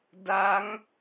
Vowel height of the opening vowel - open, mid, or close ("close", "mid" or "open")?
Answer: open